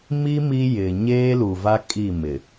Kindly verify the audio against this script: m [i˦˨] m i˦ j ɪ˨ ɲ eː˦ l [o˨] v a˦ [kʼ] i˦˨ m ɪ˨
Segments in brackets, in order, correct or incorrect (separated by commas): incorrect, incorrect, correct